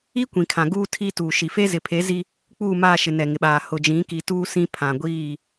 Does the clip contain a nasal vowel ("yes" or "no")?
yes